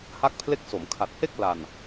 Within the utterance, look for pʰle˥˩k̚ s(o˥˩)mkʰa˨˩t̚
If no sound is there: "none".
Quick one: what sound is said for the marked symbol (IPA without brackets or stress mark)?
o˩˦